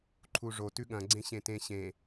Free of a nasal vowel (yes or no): no